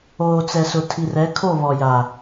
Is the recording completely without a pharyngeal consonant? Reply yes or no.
yes